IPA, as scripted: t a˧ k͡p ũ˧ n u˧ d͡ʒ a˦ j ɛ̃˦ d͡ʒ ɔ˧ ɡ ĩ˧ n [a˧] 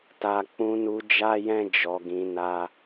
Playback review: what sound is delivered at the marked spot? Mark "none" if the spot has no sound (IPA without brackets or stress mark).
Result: a˧